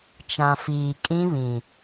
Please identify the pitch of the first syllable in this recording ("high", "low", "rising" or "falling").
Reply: low